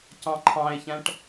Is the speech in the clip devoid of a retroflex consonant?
no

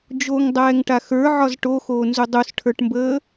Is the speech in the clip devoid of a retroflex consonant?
no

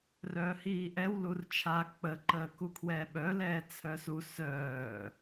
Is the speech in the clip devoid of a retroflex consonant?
yes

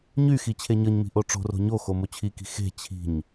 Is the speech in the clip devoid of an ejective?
yes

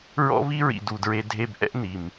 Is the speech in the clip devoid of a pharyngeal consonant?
yes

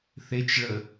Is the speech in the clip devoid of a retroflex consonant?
no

